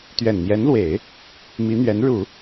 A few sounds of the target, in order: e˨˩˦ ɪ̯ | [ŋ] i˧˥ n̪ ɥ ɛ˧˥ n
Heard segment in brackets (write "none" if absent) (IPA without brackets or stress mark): m